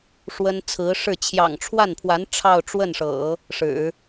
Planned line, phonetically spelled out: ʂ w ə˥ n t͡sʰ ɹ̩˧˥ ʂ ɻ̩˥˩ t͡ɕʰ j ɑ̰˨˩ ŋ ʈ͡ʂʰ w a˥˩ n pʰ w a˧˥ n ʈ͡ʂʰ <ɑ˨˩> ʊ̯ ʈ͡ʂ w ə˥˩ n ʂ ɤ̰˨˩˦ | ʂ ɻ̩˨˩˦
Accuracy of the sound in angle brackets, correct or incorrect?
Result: incorrect